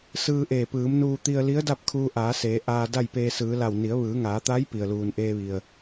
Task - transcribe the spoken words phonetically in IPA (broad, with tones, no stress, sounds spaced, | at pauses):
s ɯː˧ ʔ eː˧˩ p ɯː˩˧ m n uː˧ t̪ i˧ ə̯ l i˧˥ ə̯ d a˥˨ p̚ kʰ uː˧ ʔ aː˩˧ s eː˩˧ ʔ aː˧ d a˥˨ j p eː˧ s ɯː˩˧ l a˧˩ w n i˩˧ ə̯ ʋ ɯː˩˧ ŋ aː˩˧ t̪ a˧˥ j p i˩ ə̯ l uː˩ n ʔ eː˧ ʋ i˩ ə̯